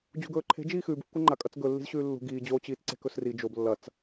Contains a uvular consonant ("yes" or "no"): no